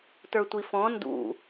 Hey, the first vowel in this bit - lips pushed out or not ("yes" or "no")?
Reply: no